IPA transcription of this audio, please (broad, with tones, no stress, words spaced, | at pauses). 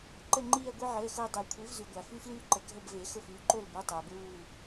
ǃə˦˨ŋ͡ǃiː˦˨ɐ̯ɡʷi˦ ʕəː˩˧˩xʊː˦˨ dˤɛ˨˩˦kʷʰi˩˥vzy˩ɡʷa˩ fy˦flyː˦ǃə˩ ɡʱə˦˨bve˨˩˦ xʊ˦˨fyː˩˥ ǃo˦˨lbu˩˧˩ tˤɛ˩ɐ̯bɹuː˦˨